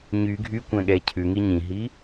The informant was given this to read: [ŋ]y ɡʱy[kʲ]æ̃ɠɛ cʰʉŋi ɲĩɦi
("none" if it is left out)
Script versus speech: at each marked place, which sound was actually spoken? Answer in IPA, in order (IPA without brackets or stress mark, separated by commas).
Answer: ɲ, kʷ